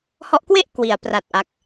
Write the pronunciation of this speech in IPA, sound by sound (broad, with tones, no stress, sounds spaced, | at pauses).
h ɔ˦˥ ʔ k w e˥˩ ʔ k w i˩˦ a̯ p r a˨˩ t̚ ʔ a˦˥ k̚